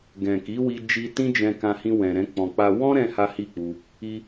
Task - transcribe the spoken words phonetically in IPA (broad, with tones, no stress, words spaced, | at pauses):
ɡɛ̃˨ ki˨˦wi˧d͡ʒi˧ tĩ˦d͡ʒɛ̃˧kã˧hĩ˧ wɛ̃˨ɾɛ̃˧k͡pɔ̃˨k͡pa˧ wɔ̃˦ ɾɛ̃˦ha˦ hi˦˨k͡pu˧ | i˧